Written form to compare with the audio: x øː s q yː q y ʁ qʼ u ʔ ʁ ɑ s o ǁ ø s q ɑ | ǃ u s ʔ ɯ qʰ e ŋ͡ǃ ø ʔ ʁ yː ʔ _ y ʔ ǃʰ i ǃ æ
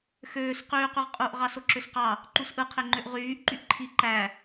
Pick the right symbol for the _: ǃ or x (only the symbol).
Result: ǃ